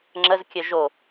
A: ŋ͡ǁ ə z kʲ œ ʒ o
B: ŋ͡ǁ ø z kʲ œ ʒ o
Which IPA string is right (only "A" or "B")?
A